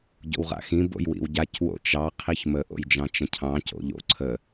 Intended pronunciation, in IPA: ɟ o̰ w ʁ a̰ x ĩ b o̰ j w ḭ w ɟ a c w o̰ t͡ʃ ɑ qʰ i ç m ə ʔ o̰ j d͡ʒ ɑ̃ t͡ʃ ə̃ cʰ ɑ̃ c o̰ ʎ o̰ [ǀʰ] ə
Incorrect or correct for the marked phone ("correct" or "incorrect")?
correct